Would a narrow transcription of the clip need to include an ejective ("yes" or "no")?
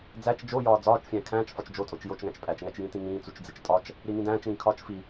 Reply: yes